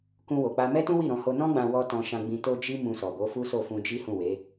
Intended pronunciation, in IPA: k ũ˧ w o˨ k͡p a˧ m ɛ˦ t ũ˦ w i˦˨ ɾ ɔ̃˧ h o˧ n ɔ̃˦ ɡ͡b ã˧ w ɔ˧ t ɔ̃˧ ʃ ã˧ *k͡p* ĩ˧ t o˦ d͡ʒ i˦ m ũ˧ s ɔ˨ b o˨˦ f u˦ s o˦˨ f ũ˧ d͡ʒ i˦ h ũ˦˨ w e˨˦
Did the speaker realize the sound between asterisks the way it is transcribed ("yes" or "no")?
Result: no